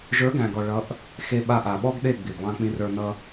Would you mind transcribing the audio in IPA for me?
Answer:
ʒ ə˞˨˦ ɡ æ̃˨ ɡ ɔ˨ ɭ ʌ˨˦ ʔ | x e˧ ɓ a˧ ʔ a˨ ɓ ɔ˦ ɡ ɗ e˦˨ ɡ͡b i˨ ɡ lˠ ã˧ k͡p ĩ˧ r ə˞˧ n ʌ˧

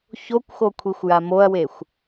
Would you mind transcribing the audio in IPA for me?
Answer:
ç o kʷ x o kʷʰ i xʷ j a m o ɐ̯ w e xʷ

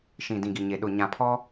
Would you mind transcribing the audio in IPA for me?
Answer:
ʃ ĩ˨ d ĩ˨ ɡ i˨ ɲ e˨ ɗ ʊ˨ ɲ ã˨ pʰ ɔ˦

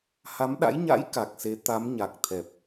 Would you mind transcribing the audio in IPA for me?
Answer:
h a˨˦ m ɗ a̰˧˥ j ɲ a̰˧˥ j k a˨˩ k̚ s e˨˦ t̪ a˨˦ m ɲ a˨˩ k̚ t̪ʰ ɛ˨˩ p̚

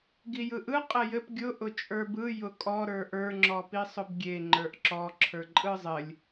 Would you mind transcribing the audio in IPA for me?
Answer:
ɡ i j ɯ ʔ ɯ qʼ ɘ j ɘ p ɡʲ ʊ ʔ ʊ t͡ʃʼ ə˞ b ɯ j ʊ kʼ ɔ ɾ ə˞ ʔ ə˞ ŋ͡ǁ ɔ p i sˤ ʊ b ɡʲ e ŋ͡ǃ ə˞ ʔ ǁ ɔ ǁʰ ə˞ ǃʼ ɯ zˤ ɘ lʲ

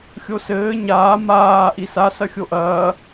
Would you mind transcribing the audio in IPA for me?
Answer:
xʲ o s ɘː ɲ aː m aː ʔ i s a s ɐ xʲ o ʔ ɐː

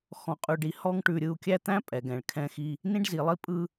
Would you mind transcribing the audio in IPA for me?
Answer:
x ɔ̃˨ qʼ ʉ˨ ɖ i˨ h ɔ˦ ŋ ʈ ʉ˨ ɾʲ ɯ˨ u̯ kʲ æ˦ t̪ æ̃˦ pʼ ɛ˨ ɡ ɛ̃˨ ɭ kʰ ɛ̃˦˨ x i˦ | n ĩ˦ ɖ z i˨ lˠ i˦ pʼ ɯ˦

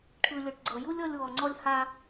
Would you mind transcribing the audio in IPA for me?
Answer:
ʈʰ ɯ˨ lʲ o˨ ʈ ɡ͡ǀ ɤ˨ j u˦ lʲ ɔ˧ lʲ w ɔ˨ ŋ͡ǀ ɔ˧ lʲ h a˧

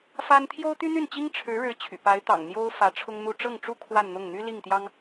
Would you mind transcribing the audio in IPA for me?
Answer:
f a˥ n t̪ʰ j o˥ ʊ̯ t̪ y˥ n̪ y˥˩ n t͡ɕ i˥ ŋ ʈ͡ʂʰ ɻ̩˧˥ ɻ ɻ̩˧˥ t͡ɕʰ y̰˨˩ p a˧˥ ɪ̯ t̪ ɑ̰˨˩ ŋ n̪ j o˥ ʊ̯ f ä˧˥ ʈ͡ʂʰ ʊ˥ ŋ n̪ u˥˧ ʈ͡ʂ ɤ˥˩ ŋ ʈ͡ʂ u˥ kʰ w a˥˧ n n̪ ʊ˥˩ ŋ n̪ y˥ l i˥˩ ŋ t̪ j ɑ˥ ŋ

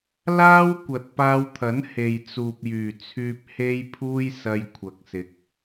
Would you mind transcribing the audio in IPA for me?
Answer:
l aː˥ w kʷ ɐ˨ t̚ p aː˧ w t̪ʰ ɐ˨˥ n h e˨ j t͡s uː˨ p̚ j yː˨˩ t͡sʰ yː˧ p̚ h e˥ j pʰ uː˥ j s ɐ˧ j kʷʰ ɐ˨ k̚ s ɪ˨ k̚

